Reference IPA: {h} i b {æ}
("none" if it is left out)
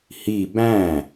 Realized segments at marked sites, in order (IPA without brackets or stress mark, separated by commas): h, æ̃